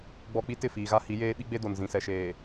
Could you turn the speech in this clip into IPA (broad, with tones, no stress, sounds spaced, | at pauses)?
ɡ͡b ɔ˦ k͡p i˦ t ɪ˦˨ f iː˨ ɣ a˦ h i˨˦ j eː˦ ɓ i˦ ɡ͡b e˦ d o˨ n z ĩ˨ s ɛ˨ ʃ eː˨